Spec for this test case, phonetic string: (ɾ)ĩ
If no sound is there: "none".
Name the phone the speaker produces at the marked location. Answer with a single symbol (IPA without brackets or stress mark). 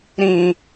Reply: ɾ